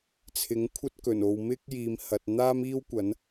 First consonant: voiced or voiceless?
voiceless